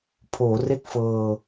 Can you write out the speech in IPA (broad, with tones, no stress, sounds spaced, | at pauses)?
pʰ oː˩˦ r e˥˩ k̚ f ɤː˧